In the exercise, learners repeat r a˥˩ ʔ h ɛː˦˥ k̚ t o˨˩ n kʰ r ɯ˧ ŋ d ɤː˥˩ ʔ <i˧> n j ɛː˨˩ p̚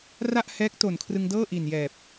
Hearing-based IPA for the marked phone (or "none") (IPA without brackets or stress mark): i˨˩